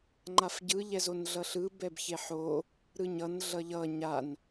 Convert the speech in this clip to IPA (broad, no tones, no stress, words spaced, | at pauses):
ŋ͡ǃafɟɯʎɛzon ɮʌɬɯ bɛbçeħo | ɾɯɲʌn ɮʌʎʌ ɲan